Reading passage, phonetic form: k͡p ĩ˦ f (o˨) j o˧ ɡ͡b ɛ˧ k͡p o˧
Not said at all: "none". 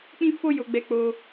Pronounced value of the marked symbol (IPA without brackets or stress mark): o˦